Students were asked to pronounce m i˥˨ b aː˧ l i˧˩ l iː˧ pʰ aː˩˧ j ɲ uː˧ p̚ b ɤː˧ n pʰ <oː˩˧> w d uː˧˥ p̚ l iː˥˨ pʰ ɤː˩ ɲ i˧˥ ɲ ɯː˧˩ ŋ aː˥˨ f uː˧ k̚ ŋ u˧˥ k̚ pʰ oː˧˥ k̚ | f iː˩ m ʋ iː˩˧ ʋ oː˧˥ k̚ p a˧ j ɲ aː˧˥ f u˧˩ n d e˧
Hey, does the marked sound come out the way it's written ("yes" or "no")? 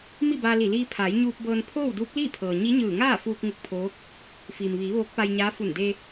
no